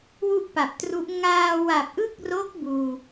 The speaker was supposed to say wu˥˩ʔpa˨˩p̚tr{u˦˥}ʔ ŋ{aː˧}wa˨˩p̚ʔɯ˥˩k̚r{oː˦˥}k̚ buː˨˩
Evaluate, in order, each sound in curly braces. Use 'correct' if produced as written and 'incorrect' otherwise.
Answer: correct, correct, incorrect: o˦˥

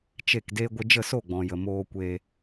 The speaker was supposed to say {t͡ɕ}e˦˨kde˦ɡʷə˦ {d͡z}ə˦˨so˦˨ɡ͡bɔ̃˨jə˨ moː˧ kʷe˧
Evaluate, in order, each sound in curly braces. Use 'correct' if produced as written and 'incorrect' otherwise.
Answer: incorrect: t͡ʃ, incorrect: d͡ʒ

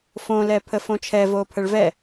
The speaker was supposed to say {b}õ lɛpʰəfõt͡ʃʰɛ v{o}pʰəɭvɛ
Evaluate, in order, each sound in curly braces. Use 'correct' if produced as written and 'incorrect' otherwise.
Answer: incorrect: f, correct

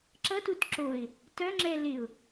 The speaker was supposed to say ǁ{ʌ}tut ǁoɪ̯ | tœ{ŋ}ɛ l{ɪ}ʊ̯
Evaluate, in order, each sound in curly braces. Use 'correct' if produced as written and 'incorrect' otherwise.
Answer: correct, incorrect: ŋ͡ǁ, correct

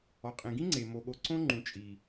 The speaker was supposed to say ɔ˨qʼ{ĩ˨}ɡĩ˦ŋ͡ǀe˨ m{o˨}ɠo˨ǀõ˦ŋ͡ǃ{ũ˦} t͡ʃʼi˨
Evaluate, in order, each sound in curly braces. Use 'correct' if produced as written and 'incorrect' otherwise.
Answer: correct, correct, incorrect: ũ˨

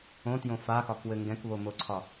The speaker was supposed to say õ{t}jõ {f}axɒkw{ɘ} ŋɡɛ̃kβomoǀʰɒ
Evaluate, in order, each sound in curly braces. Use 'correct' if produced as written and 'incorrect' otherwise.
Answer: correct, correct, correct

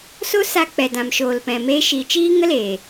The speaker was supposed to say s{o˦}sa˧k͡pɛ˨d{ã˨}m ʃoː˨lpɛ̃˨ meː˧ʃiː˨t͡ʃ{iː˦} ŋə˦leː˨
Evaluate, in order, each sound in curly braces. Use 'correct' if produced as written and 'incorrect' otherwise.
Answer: correct, correct, correct

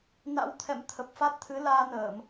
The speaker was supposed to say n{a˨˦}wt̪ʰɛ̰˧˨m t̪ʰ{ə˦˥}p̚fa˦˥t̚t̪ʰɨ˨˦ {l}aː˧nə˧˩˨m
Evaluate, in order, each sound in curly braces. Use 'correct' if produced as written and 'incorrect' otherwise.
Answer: incorrect: a̰˧˥, incorrect: ə˨˩, correct

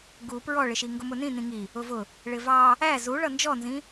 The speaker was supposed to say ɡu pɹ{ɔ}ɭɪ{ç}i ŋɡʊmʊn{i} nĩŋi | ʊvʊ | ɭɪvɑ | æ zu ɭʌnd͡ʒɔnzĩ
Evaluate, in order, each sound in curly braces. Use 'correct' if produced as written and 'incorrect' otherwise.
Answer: correct, incorrect: ʃ, incorrect: ĩ

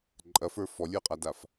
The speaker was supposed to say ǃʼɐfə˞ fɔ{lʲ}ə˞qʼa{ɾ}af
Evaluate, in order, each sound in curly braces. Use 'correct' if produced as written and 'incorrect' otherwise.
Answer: correct, incorrect: d

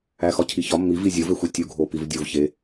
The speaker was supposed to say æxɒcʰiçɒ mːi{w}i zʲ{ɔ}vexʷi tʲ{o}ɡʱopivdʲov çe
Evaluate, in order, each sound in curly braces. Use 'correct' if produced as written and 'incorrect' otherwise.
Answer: incorrect: v, incorrect: o, incorrect: u

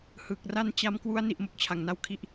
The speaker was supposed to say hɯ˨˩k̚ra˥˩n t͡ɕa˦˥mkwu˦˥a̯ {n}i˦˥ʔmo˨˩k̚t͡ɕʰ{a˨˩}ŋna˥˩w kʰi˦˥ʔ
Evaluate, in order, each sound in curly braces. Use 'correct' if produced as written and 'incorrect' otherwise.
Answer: correct, correct

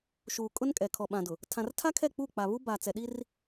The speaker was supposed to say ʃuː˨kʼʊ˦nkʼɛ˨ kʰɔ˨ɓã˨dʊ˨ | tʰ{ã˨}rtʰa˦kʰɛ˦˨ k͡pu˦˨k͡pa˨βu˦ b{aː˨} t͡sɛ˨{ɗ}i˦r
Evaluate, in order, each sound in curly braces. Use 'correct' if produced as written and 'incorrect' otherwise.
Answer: correct, incorrect: a˨, correct

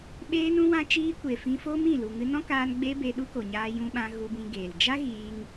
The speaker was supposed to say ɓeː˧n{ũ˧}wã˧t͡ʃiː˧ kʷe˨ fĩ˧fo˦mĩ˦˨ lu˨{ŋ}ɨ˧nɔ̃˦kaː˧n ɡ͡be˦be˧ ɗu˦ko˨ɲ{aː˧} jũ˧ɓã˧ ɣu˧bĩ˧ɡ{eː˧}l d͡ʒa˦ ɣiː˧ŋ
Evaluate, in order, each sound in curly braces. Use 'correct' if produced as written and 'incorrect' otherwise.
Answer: correct, correct, correct, incorrect: eː˨

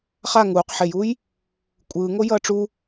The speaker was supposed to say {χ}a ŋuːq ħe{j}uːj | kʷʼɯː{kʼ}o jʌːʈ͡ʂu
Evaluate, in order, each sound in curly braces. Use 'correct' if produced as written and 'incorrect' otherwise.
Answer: correct, correct, incorrect: ŋ

